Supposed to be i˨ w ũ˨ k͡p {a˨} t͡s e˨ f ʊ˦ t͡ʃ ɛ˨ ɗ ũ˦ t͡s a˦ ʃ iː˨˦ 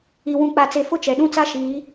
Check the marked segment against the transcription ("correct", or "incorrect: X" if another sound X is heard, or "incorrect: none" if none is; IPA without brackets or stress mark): correct